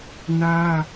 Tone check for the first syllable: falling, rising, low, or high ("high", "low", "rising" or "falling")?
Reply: high